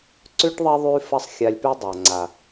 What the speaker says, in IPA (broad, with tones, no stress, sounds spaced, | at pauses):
ǀ ʉ˦ ʈ ðˤ ɐ˦ ðˤ y˦ f ɐ˦ sˤ xʲ a˧ lʲ p y˦ dˤ a˨ ŋ͡ǀ a˨